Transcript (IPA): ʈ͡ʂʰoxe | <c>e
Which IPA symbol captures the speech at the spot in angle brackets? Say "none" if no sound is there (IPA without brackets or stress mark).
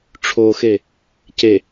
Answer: c